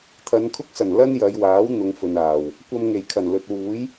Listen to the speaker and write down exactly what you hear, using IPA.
t̪ʰ ɐ˨˧ n kʰ ʊ˥ k̚ s ɐ˨˩ n l ɐ˥ n j ɐ˨˧ j w aː˨˥ w n̪ ʊ˨˧ ŋ f ɵ˨ n aː˨˩ w | kʷ ɐ˧ m ŋ e˨˩ j kʰ ɐ˨˩ n l ɵ˨ t̚ w uː˨˥ j

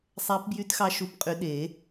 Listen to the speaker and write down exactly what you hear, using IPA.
sˤ æ˧˥ p b j y˧˥ t x ɑ˧˥ ʃ u˧˥ p qʼ y˧˥ ɗ e˨˩˦

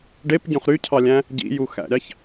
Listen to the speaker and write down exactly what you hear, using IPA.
ɖ e p ɟ õ χ ɾ y cʰ ɑ lʲ æ̃ | ɟ ḭ j u x æ̰ ɾʲ ɑ ç

